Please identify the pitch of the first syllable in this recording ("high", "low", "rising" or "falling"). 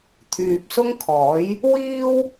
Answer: low